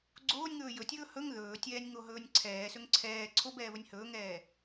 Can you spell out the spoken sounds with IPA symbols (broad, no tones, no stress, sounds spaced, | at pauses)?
ɡ͡ǀ oː nʲ ŋ ɵː j ɵ tʲ ɵː h ɵ ŋ ð ɵː tʲ ɛː nʲ ŋ o ɦ ɵː nʲ ǀʰ ɛː s ɵ ŋ ǀʰ ɛː ǀʰ o b ɛː β ɵ nʲ h ɵː ŋ ɛː